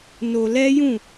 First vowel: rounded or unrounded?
rounded